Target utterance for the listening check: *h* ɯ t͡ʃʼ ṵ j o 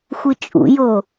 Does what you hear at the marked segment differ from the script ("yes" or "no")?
yes